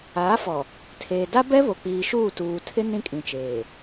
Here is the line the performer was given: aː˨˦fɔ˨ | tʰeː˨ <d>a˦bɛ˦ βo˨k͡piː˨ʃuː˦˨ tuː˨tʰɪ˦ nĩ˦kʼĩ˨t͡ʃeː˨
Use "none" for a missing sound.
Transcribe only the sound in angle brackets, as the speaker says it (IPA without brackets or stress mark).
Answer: d